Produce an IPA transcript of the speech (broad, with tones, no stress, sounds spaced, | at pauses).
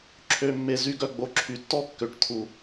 ǁʰ ø˨˩ mː e˨˩ z y˥˩ ɡ œ˥˩ ɡ͡b o˨˩ ǁʰ y˨˩ tː ɔ˥˩ kː ø˨˩ ʈ t̪ʰ u˨˩